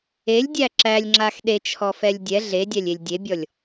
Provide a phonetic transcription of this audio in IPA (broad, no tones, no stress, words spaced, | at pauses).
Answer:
elʲdʲæ ǁælʲŋ͡ǁax ɗet͡ʃʰɔfɛlʲ dʲɛ ɮedʲælʲelʲ dʲebʲɔlʲ